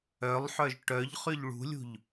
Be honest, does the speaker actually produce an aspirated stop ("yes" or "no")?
no